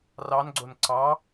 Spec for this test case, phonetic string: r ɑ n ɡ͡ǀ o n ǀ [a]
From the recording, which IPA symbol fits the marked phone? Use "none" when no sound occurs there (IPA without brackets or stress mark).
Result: ɑ